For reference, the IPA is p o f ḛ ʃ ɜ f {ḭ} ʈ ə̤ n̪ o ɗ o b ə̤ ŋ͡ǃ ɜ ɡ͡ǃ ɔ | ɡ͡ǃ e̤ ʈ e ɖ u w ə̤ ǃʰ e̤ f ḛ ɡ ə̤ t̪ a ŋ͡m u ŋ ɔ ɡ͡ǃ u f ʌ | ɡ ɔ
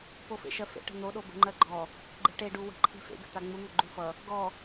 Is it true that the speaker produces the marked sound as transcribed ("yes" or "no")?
no